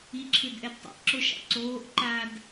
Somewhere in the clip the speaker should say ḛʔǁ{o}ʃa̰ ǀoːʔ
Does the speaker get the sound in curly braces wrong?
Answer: no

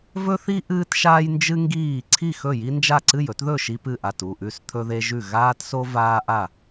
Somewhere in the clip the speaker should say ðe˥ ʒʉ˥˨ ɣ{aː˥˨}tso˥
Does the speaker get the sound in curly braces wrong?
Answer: yes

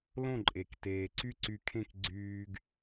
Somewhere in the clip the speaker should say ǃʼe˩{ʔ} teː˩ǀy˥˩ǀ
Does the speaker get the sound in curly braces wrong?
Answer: yes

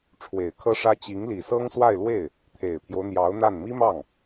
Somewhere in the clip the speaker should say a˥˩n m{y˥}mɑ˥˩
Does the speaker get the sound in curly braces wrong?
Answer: yes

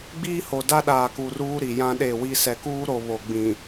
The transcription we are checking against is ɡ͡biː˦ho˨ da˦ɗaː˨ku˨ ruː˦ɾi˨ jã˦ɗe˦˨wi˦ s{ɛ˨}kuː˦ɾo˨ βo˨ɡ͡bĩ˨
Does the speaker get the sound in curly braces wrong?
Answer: no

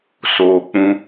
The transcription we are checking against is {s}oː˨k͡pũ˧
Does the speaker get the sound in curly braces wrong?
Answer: no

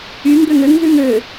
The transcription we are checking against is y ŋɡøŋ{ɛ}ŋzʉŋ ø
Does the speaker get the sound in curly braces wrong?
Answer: yes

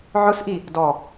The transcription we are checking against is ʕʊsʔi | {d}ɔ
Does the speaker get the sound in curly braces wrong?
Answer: no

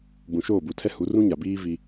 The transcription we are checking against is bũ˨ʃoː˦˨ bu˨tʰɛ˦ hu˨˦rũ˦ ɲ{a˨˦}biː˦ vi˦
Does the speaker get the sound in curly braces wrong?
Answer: yes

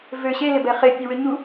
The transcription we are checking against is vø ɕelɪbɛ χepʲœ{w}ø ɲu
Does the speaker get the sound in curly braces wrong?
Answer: no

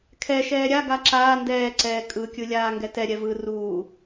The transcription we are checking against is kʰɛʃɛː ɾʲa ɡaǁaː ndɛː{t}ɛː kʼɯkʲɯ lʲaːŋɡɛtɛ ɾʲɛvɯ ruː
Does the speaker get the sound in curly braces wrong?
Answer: yes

